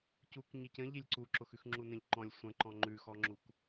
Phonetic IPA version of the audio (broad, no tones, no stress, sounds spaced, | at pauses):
c u k ɲ i c ə̃ ʎ i lʲ ǀ u ǁ ʊ x ʉ x ŋ͡ǁ u n ə̃ ʎ ǃ ɔ̃ lʲ sʷ ə̃ ǃ ɔ̃ ŋ͡ǃ ʉ x ɔ ŋ͡ǁ u k